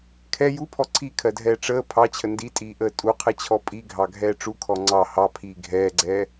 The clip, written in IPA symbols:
kʰɛ jupʰɔ ǀʰikʰɜdʱɛː ʈ͡ʂəː pʰɑt͡ɕʰə nditʼiːʔəː tʼuqʰɛt͡ɕʰɔ pʼiɡʱɑɡʱɛː ʈ͡ʂukʰɔ ŋ͡ǀɑ hɑpʰiː ɡʱɛːɡ͡ǀɛː

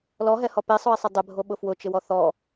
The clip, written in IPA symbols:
lɔɦɛhɔ pesˤʊi̯sˤɪ dˤɪbʱoɓʊ fwʊt͡ʃɪwɔ θɔ

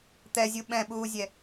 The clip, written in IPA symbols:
t̪ɛzʲu ɓɛ̃ɓuːzʲɛ

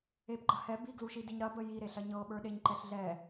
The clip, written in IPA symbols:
epɡ͡ǃɐhɛ biɡluʃidiɲ ɾɐbə jiɾeɬɐ ɲɤɓə˞ ɗeɲǃɛɬɮɛ

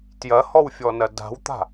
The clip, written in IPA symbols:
tjɐhɔwfʲɔnɐ da̤wt̪a̤

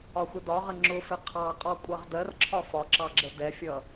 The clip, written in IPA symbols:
ɒxʷɪdɒʁə ŋ͡ǁʊfɪ qʰɑqʼɔkʷʼʌʁ dɜrǁʰɒ fɒǁɑɡ͡ǁə dɛfʲʌ

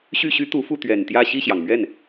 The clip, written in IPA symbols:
ɕy˥˩ɕy˥ t̪u˧˥fu˥˩ t̪ɥɛ˨˩nt̪jä˥˧ ɕi˥˩ɕjɑ˩ŋmɥɛ˥˩n

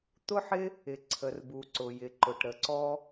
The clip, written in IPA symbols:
t̪ʊ˥ħɪ˥ | ɪ˩ ǀʰə˩rbu˩ǀʊ˩ jɪ˩ǃʊ˩ʈɾə˩ ǀɔ˥

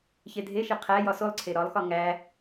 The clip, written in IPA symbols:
çedʱeʃe qʰæ jɒsolˠǀʰe ɾɒlˠxɒ ŋæ

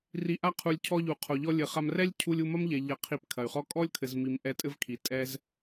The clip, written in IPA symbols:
ri˨ʔa˧qʰu˨lʲ cʰɔ˧ʎu˨qʰo˨ʎɔ˧ lʲɘ˨χa˧m rɛ˦lʲ cʰu˧lʲu˧mɐ˦mʎɛ˨ ʎɐ˧qʰi˧pkʰɐ˨y̯χɔ˦ kʼɔ˦lʲkʰɘ˨zmi˨m ʔɛ˧tʼɘ˦vkʰi˨ tʼɛ˦z

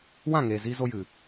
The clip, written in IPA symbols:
wã˦˨ŋeː˨zi˧ zo˧jɨ˨

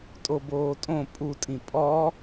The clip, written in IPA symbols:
tʼoboːtʼõ pʼutʼĩ pʼɔ

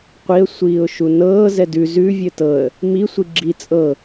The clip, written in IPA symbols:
qʷiə̯ sʷiːʊ̯ʃunɤː zɛdʉ zʉ vʲɘtɤə̯ | mi sʷiɡ͡ǁi t͡sʼɤ

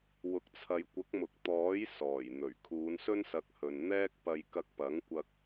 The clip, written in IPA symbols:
wʊ˨k̚t͡sʰɐ˨jkʷɐ˨˥k̚mʊ˨k̚ t̪ɔː˨˥j sɔː˨˩jn̪ɵ˨˩ɥ kʰuː˨˧nsɵ˥nsɐ˨˥k̚hɵ˨n n̪ɛː˥k̚pɐ˧j kɐ˧k̚pɐ˨˥ŋkʷɐ˧k̚

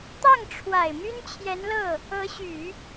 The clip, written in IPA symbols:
t̪ɑ˥˩ŋʈ͡ʂʰwa˨˩ɪ̯ my˥nt͡ɕʰjɛ˧˥nlɤ˥˩ | ɤ˧˥ɕy˨˩˦

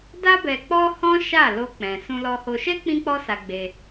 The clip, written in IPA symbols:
da˦bɛ˧k͡pɔ˦hɔ̃˦ ʃa˦˨lo˧k͡pɛ̃˨ sũ˧lɔ˧ho˧ ʃɛ˦ k͡pĩ˦k͡pɔ˦sa˧ ɡ͡be˧

